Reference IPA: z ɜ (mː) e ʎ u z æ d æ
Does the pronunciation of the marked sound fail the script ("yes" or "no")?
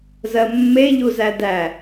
no